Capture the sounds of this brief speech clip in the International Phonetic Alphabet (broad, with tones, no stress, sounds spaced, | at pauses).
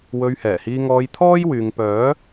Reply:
w ɵ˧ ɥ h ɛː˨˩ h iː˧ ŋ ɔː˧ j t̪ʰ ɔː˥ j w yː˨ ŋ p œː˨˥